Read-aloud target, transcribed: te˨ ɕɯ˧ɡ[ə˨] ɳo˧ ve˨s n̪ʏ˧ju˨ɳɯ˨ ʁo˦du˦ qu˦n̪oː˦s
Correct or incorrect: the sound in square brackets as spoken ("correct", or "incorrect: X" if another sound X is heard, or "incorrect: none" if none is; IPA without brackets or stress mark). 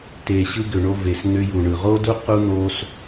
incorrect: ʏ˨